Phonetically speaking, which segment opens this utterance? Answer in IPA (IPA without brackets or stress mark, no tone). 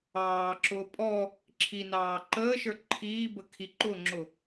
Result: ɑː